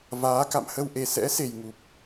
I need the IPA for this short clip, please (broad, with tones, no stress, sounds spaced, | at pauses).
v aː˨˦ k a̰˧˨ m h ə˧ w ʔ e˨˩ s ɛ̰˧˥ s e˨˩ j ŋ u˨˩ p̚